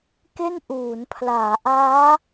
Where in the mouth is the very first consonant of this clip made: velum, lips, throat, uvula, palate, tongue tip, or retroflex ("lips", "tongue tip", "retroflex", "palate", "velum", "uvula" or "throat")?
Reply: velum